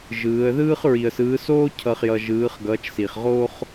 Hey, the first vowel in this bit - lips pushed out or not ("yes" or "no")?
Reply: no